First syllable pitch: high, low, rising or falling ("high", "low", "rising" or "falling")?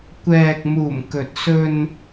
low